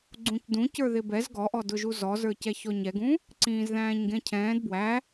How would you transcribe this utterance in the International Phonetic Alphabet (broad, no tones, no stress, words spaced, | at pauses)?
ɡ͡ǀũcdũ cə˞ðɪbɛz ɡɔʔɔdʊʒu zɔzə˞cɛ çɔɲɛɡũ | ǀĩːzðæ̃ːɲɡɛ̃cʰɛ̃ːd bwæ